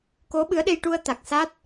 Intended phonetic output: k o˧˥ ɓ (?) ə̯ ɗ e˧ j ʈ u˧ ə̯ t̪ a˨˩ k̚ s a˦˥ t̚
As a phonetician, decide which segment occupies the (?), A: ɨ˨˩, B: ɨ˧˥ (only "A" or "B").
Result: B